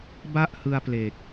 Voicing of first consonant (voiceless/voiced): voiced